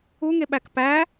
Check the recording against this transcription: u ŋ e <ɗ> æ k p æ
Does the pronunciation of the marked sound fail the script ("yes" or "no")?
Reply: yes